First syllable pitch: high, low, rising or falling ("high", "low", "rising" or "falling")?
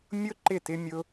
high